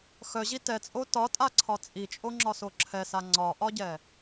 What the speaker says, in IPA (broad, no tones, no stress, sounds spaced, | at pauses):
x œ ʑ i t ɛ t͡sʼ o t ɒ tʼ a ǀʰ ɒ t͡sʼ i t͡ʃʼ o ŋ͡ǁ ɒ s o ǁʰ ɛ s a ŋ͡ǀ ɒ ʔ ɒ ɟ ɛ